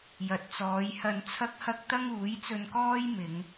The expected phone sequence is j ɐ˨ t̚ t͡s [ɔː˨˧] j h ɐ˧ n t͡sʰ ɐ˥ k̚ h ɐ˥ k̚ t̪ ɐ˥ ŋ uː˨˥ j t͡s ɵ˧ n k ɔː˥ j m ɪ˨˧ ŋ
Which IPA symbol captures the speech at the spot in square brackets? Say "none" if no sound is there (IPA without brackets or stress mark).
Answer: ɔː˨˧